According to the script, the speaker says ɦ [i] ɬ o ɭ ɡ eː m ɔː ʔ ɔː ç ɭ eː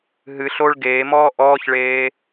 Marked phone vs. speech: incorrect: ɨ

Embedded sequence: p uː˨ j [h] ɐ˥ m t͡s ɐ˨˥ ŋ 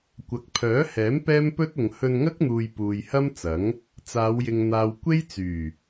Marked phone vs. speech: correct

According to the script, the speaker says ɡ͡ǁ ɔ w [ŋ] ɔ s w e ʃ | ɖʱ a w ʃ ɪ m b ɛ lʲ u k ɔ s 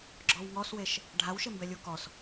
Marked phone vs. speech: correct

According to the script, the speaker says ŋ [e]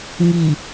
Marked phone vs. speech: incorrect: i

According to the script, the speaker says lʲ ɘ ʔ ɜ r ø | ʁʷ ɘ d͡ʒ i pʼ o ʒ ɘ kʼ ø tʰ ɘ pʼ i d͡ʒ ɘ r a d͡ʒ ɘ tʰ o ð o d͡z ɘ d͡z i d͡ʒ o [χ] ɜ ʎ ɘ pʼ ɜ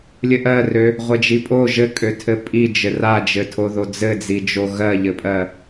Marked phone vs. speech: incorrect: ɣ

